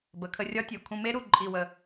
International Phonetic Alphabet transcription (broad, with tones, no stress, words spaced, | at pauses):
bə˩˧kʰə˧rʲɒ˦˥tʲo˩˧ kʰũ˧me˦˥ɾu˧˩ ǃʼi˧˩wə˧˩